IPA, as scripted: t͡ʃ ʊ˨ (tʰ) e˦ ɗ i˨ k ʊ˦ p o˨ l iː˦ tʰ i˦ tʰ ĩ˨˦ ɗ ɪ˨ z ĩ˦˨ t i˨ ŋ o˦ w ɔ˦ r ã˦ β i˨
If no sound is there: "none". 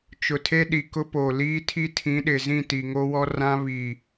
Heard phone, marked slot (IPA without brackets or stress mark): tʰ